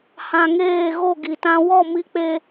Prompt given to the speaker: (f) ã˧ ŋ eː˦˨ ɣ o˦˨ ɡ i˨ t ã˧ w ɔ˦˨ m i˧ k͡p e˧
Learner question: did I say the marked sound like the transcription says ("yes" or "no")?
no